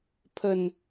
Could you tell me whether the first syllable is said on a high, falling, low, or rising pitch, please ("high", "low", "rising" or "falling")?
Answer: low